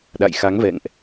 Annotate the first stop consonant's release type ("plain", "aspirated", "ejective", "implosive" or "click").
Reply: implosive